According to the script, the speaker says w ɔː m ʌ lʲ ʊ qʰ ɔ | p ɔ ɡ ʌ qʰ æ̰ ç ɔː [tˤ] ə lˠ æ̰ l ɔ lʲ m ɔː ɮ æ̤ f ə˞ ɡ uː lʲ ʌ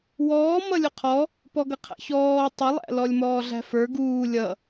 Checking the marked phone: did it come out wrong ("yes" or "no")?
no